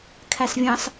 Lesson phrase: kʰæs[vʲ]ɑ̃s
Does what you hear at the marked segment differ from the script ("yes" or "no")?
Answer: no